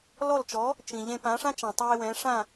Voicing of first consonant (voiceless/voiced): voiced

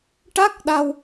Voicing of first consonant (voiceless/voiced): voiceless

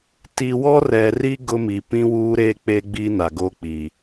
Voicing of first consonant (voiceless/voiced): voiceless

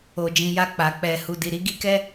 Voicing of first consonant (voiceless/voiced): voiced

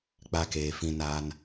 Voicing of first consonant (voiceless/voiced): voiceless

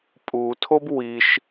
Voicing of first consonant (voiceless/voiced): voiceless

